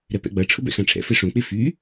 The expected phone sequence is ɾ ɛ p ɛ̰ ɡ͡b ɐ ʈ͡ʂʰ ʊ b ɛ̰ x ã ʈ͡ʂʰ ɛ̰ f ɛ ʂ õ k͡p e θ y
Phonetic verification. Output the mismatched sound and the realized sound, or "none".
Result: θ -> f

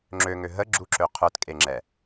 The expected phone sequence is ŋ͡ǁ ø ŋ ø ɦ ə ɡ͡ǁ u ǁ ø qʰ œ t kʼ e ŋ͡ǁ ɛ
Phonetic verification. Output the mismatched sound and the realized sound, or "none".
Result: none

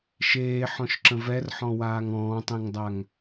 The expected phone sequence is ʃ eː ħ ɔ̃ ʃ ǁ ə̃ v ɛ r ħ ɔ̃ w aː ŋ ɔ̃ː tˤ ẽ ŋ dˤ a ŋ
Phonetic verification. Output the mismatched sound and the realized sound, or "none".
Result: none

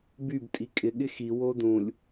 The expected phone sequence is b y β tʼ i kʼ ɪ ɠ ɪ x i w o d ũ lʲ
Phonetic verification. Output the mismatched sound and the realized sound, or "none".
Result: β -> b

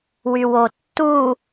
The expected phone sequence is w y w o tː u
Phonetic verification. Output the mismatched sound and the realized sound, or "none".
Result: none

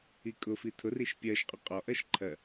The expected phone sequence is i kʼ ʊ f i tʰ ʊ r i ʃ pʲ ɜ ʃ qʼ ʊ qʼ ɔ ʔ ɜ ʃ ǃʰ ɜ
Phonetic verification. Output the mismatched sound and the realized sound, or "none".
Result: none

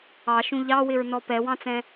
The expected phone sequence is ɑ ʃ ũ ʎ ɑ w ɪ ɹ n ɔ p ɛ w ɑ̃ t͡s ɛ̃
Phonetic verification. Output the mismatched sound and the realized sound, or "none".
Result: none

